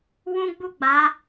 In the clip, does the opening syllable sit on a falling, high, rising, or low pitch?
high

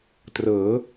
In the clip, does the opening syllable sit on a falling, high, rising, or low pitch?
rising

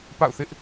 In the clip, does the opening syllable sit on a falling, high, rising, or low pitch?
falling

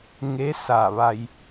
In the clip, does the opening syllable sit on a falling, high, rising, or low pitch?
rising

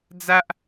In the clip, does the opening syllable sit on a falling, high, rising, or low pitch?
high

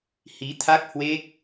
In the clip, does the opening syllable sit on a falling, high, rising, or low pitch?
rising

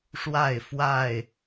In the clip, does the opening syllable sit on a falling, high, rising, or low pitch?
falling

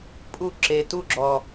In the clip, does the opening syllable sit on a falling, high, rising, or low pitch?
falling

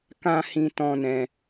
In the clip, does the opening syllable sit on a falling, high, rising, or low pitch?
high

